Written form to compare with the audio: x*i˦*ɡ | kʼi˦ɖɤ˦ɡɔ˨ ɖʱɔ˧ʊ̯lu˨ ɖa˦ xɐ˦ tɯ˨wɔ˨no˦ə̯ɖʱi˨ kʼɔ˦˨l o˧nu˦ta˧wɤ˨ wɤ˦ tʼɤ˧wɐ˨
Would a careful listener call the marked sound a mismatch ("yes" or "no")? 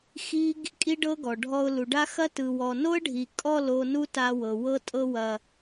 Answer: no